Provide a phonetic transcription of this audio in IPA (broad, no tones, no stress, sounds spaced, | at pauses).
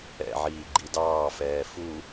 ɛ̰ ʕ iː ɡ͡ǃ i d ɑː f ɛː f u